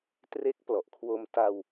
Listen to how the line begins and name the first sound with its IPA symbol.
t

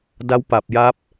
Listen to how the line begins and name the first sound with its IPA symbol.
d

